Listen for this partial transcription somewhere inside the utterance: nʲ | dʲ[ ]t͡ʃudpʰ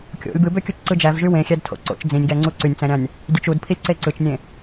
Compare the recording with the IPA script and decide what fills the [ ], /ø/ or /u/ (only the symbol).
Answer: ø